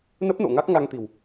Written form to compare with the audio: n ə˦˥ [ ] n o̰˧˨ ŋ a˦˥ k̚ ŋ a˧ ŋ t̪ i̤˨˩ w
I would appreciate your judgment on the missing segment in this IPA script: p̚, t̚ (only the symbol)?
p̚